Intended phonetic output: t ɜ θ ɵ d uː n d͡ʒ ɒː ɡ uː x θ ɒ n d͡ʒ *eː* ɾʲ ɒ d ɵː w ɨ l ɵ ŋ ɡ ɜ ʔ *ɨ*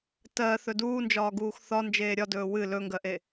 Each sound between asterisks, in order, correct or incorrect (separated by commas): correct, incorrect